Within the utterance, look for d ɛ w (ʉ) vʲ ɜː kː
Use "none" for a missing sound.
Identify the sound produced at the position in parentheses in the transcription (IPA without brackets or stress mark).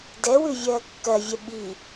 ʉ